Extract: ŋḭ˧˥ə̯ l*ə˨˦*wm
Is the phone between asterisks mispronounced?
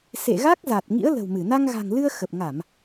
yes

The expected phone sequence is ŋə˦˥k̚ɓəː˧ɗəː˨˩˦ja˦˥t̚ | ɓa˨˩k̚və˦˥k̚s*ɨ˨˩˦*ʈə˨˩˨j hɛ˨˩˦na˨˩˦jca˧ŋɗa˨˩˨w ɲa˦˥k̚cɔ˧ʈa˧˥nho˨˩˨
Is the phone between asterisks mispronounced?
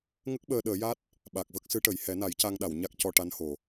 yes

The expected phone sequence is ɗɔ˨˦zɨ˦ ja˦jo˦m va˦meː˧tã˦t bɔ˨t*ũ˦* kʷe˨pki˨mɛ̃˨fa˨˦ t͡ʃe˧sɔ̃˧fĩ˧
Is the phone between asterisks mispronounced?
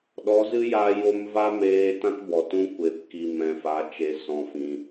no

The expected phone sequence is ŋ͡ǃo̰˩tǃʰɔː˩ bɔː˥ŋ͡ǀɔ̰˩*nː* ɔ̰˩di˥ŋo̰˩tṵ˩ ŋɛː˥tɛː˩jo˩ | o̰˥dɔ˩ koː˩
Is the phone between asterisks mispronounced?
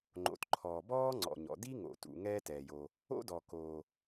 yes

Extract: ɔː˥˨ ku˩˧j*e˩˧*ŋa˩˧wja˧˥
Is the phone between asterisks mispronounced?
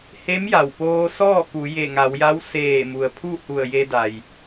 yes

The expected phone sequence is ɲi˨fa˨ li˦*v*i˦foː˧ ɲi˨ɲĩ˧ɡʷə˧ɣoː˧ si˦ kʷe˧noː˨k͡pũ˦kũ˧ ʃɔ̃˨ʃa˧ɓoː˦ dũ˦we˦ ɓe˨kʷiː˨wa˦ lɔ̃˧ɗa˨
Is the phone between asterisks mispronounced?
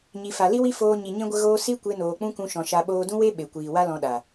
yes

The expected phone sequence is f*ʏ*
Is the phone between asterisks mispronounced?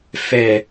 yes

